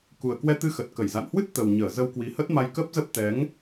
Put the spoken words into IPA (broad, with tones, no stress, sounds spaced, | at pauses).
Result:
k u˨˩ ə̯ k w ɛ˧ t̪ ɨ˧ x ə˨˩ t̚ k ə˧˩ j z a̰˧˨ n h w ɨ˦˥ t̚ t̪ ə˨˩ w ɲ əː˧˩ z ə˧ w k w i˨˦ h ə˦˥ t̚ m a˧ j k ə˦˥ p̚ z ə˦˥ p̚ t̪ ɛ˨˦ ŋ